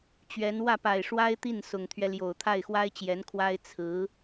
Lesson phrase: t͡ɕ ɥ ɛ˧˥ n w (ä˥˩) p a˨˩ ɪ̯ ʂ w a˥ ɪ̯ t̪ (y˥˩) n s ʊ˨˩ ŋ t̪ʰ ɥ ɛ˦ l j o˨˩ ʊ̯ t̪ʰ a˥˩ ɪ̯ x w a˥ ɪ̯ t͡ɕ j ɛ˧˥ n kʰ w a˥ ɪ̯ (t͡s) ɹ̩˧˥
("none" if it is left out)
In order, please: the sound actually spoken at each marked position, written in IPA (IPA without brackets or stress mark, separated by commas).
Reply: ä˥˩, i˥˩, t͡sʰ